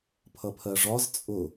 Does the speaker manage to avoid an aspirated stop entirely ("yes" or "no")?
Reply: no